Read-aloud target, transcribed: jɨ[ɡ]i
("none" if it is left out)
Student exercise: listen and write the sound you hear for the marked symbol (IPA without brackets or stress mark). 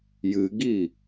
ɡ